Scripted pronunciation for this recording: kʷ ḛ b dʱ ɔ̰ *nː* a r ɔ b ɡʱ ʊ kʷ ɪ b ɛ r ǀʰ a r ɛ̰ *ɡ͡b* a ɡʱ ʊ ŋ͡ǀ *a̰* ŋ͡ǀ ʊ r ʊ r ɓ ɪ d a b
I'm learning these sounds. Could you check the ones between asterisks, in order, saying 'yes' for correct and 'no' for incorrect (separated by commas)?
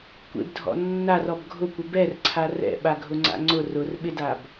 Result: yes, no, yes